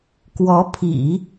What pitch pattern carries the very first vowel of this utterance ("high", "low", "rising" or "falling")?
rising